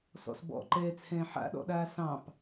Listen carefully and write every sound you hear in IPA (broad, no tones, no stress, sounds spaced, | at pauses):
s ɔ̰ s b ɔ̰ ǃ ɛː t͡sʰ ɛ̃ː ħ a̰ ɗ ɔ̰ ɗ aː s ɑ̃ p